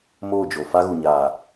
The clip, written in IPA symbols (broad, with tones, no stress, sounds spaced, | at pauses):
m oː˦˨ d͡ʒ o˨ f a˧ ɣ u˨ ɲ aː˨